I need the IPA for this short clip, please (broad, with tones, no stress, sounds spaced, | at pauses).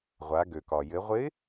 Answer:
ʁʷ a˩˧ ɡ ø˩ k ɒ˩ j ɘ˩˧ ʁʷ ɪ˧˥